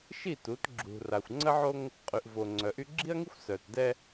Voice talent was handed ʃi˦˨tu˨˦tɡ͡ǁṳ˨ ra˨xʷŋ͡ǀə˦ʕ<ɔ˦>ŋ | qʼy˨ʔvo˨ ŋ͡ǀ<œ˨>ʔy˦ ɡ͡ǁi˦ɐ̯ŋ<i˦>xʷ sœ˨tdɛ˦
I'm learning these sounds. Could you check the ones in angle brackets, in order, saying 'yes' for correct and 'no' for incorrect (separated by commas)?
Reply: no, yes, yes